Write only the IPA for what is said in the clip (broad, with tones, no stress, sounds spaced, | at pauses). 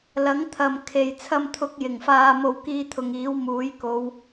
l ɐ˨˥ ŋ t̪ʰ ɐ˨ m kʰ e˨ j t͡sʰ ɐ˧ m t̪ʰ ʊ˨˥ k̚ j ɪ˨˩ ŋ f aː˨ m o˨ w k iː˧ t̪ʰ ʊ˨ ŋ iː˨˥ w m uː˨˥ j k o˨˧ w